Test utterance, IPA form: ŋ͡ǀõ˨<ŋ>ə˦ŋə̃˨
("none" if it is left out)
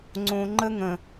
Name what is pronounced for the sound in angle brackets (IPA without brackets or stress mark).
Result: ŋ͡ǃ